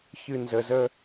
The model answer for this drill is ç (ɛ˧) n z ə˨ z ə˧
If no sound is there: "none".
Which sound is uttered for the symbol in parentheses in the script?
ɨ˧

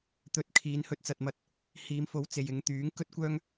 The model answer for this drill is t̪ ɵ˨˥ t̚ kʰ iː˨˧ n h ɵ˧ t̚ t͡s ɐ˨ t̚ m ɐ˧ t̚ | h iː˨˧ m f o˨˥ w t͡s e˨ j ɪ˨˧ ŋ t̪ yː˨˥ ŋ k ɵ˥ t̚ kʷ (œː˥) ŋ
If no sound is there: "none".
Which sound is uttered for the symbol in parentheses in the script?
œː˥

